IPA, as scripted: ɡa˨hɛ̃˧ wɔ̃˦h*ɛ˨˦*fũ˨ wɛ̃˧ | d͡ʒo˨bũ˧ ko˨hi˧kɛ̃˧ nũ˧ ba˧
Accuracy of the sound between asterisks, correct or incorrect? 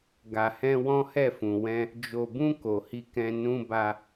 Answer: incorrect